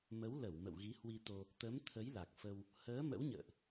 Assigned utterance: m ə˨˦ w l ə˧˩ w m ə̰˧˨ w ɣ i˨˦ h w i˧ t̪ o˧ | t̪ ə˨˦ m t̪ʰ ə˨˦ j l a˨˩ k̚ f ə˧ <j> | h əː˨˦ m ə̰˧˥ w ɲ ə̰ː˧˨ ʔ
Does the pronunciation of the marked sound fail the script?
yes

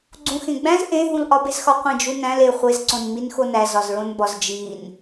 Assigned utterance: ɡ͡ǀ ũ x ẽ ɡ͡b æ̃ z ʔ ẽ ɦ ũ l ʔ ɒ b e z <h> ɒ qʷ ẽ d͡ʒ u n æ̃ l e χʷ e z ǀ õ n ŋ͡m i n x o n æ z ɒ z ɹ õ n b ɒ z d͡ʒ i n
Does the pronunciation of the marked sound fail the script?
yes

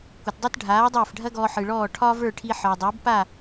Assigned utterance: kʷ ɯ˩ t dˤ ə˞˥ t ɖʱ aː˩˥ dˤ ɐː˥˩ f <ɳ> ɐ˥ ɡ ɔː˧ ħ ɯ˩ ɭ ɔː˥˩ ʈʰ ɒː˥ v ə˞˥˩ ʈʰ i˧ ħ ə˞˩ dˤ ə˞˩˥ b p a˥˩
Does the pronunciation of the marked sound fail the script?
yes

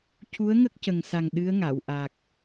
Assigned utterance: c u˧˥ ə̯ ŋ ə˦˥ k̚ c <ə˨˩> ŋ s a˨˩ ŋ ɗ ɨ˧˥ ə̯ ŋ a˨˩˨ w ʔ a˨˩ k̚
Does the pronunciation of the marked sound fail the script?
no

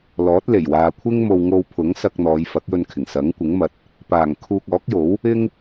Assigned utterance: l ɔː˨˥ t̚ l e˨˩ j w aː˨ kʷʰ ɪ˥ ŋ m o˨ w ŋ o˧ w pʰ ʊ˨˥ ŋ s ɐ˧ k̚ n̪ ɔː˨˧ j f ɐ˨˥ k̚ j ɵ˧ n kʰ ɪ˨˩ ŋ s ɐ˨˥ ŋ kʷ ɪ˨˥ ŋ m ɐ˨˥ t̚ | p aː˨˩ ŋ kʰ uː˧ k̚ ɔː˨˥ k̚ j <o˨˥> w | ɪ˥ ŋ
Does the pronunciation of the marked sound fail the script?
no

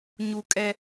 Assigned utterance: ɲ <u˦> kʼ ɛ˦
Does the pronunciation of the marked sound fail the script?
yes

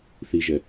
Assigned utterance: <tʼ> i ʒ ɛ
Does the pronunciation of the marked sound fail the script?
yes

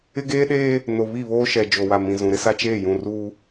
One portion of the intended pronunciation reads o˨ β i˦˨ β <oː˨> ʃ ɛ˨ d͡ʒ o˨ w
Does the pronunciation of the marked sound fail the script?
yes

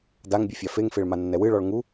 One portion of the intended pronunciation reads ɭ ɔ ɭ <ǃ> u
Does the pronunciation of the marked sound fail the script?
yes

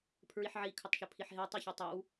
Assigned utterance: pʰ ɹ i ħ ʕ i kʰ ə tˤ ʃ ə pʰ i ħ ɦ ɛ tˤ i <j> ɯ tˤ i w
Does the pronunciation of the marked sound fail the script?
yes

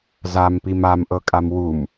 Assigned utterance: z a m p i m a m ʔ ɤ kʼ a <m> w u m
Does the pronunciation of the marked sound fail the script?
no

